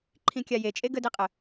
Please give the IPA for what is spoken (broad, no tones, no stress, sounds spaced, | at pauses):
ǃʰ ĩ kʲ a j e t͡ʃʼ e ɡ ə d i qʼ ə